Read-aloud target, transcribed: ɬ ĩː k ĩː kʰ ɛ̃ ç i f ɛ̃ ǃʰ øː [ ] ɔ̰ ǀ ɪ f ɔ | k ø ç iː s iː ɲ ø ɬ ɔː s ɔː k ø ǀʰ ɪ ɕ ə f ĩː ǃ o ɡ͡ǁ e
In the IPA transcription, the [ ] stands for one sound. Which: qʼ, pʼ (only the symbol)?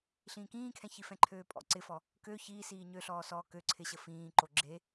pʼ